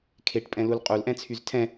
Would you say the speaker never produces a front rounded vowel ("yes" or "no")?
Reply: no